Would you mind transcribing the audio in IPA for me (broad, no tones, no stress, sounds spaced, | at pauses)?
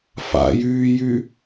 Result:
f a̰ j yː j y